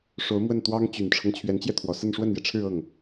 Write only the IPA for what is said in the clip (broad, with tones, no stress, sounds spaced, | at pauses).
ʂ o˧˥ ʊ̯ m w ə˥˩ n t̪ w ɑ˥ ŋ t͡ɕ y˨˩ n ʈ͡ʂʰ ɤ˦ ŋ t͡ɕʰ ɥ ɛ˧˥ n t͡ɕ j ɛ˧ t̪ʰ w ɔ˨˩ s ə˥˧ n ʂ w ə˥˩ n j ɛ˩ ʈ͡ʂʰ ɻ̩˥˧ ɤ˥˩ ŋ